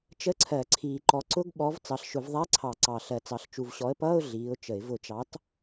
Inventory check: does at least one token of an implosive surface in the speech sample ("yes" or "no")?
yes